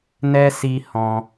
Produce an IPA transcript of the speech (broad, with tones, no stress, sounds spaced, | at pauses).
n ɛ˦ s i˧ h ɔ̃˧